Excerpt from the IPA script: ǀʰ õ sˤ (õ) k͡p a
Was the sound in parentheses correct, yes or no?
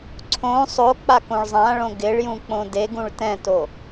no